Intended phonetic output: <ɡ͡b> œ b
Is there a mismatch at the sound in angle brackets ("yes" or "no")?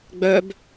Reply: no